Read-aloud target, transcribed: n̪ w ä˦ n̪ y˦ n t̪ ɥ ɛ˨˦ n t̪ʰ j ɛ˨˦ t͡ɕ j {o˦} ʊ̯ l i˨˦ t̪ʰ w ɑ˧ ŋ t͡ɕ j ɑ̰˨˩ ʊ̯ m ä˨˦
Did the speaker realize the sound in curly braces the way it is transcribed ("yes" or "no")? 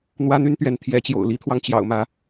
no